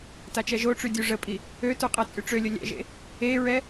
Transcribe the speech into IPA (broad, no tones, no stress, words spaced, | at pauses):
tat͡ʃɛʒoʈ͡ʂy dʲuʐəpʼi | øtu qʼɛt͡sʼyʈ͡ʂølʲə lʲɛ̰ʒḛ | eɹɛ